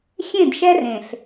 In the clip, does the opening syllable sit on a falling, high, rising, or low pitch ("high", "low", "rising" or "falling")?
falling